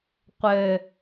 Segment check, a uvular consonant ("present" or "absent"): present